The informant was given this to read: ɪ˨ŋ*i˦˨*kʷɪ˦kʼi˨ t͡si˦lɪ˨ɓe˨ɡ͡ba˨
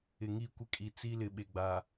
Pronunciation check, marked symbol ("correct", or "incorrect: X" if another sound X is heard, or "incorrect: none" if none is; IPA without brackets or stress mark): correct